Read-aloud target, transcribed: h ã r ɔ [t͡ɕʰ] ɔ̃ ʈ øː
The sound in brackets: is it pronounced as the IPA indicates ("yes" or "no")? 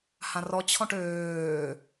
yes